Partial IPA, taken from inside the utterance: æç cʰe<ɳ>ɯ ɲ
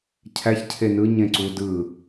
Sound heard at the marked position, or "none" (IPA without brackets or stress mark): n